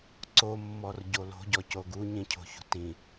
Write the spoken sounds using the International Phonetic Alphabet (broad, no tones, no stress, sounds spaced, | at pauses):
ǀ o mː ɔ r ɟ o l o̤ ɟ ɔ c o ɡ u ɲ ĩ cʰ o̤ ç ṳ t ĩ